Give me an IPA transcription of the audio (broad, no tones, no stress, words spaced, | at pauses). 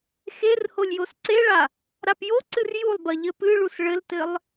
xerholʲ josǀeɭa | ɾapjoǀɨr julˠbɐ ʎɘpɨɭus ɭɘltɘlˠ